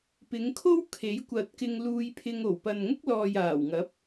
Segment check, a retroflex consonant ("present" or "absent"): absent